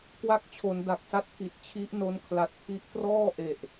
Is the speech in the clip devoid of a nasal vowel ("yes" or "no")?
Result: yes